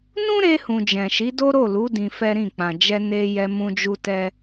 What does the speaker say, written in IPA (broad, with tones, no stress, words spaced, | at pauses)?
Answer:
nũ˦ɾe˧hũ˨ d͡ʒɛ̃˨ʃi˨˦do˦ ɾo˦˨lu˨˦ dĩ˧fɛ˦ɾĩ˦˨ k͡pã˨ d͡ʒɛ˧ne˧ jɛ˧ mũ˦d͡ʒu˦tɛ˦